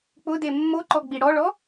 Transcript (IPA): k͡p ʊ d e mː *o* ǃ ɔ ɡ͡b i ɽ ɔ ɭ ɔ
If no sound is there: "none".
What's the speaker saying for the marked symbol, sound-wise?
o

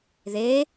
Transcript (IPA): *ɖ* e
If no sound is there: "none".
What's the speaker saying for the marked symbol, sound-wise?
ð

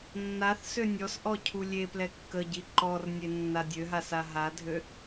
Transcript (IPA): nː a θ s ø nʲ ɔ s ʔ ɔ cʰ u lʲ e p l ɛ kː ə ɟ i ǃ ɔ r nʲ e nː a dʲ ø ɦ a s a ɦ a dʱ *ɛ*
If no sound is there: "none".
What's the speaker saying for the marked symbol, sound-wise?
ø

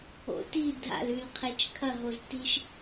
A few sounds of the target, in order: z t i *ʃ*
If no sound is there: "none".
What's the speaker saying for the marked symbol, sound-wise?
ʃ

